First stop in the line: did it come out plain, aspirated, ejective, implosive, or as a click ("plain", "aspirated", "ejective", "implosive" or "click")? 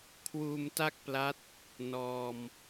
aspirated